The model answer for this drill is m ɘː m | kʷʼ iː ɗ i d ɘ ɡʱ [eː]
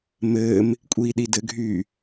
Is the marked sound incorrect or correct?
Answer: incorrect